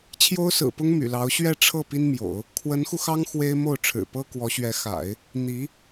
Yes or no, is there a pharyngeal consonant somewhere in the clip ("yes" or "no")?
no